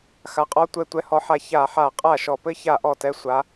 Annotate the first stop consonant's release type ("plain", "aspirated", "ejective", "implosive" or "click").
ejective